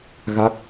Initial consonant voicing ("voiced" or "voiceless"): voiced